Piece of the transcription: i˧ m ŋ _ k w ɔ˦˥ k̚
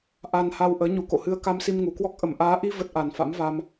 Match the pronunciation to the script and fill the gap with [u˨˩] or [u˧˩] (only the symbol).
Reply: u˨˩